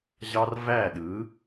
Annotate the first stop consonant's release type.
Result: implosive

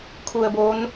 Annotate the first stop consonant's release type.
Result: aspirated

